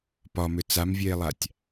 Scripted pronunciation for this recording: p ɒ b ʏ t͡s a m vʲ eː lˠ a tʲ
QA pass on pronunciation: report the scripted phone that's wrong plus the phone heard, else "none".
b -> m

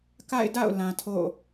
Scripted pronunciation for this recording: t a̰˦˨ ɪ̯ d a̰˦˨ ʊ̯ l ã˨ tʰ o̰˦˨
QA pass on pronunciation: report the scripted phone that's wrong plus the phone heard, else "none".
t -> k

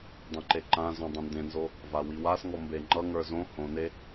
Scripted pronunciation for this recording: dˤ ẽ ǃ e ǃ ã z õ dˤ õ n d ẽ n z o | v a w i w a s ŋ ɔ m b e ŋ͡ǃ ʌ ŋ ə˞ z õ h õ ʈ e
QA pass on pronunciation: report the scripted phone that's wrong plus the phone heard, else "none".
ʈ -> n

